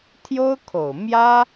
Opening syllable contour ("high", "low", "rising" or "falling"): high